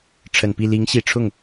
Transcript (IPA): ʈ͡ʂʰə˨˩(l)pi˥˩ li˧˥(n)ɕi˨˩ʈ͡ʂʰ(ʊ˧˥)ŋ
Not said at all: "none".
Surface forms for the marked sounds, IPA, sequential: n, ŋ, ʊ˥˩

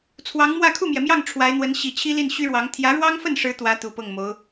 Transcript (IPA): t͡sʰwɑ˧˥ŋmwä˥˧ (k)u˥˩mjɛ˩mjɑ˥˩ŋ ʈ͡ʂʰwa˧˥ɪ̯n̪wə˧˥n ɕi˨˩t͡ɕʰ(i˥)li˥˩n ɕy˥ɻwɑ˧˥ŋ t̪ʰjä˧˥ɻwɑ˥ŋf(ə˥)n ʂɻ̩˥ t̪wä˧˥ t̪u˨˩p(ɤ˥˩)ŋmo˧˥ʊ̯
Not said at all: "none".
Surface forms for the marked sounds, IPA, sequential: kʰ, i˥, ə˥˩, ɤ˥˩

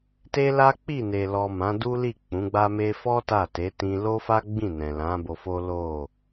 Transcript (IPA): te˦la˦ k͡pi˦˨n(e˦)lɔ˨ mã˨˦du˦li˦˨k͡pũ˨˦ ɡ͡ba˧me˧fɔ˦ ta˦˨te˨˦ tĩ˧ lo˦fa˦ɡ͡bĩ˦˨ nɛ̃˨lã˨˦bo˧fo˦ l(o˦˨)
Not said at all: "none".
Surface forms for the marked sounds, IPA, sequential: e˨, o˦˨

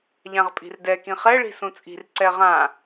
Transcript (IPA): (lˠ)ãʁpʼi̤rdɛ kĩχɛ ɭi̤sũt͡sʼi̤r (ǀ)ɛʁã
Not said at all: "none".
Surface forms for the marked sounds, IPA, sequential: ʎ, ǀ

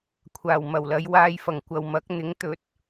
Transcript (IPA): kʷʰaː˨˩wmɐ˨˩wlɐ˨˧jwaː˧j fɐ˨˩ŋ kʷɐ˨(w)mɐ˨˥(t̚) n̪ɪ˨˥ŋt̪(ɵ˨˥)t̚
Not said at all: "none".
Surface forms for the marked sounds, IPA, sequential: w, k̚, ɵ˨˥

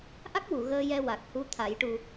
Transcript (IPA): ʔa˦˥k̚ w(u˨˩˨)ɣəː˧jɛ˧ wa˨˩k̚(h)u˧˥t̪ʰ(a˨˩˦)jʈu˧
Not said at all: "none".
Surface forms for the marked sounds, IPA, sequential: u˨˩˨, h, a˨˩˦

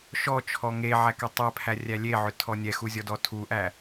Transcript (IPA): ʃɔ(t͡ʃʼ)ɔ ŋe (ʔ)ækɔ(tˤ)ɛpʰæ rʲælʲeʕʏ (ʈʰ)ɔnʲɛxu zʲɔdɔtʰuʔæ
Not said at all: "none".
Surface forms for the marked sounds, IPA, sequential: t͡ʃʰ, ʕ, tˤ, tʰ

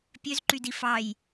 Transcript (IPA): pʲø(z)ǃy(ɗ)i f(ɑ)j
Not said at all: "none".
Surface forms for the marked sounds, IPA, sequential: z, d, ɑ

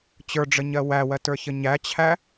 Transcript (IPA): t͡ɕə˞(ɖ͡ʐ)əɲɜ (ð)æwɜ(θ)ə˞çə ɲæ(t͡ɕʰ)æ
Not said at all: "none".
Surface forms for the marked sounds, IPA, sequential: ɖ͡ʐ, w, t, t͡ɕʰ

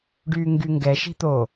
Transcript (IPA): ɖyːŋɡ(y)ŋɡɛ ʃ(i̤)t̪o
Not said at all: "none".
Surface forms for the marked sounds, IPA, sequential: y, i̤

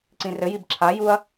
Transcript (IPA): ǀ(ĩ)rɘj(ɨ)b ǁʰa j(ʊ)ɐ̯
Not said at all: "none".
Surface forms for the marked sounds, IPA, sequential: ĩ, i, u

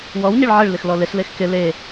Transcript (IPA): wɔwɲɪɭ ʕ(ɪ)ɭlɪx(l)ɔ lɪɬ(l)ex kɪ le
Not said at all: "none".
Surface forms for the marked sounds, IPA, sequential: ɪ, l, l

